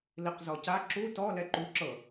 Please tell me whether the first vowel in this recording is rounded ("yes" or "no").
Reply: no